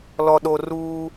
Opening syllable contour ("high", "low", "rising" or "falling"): low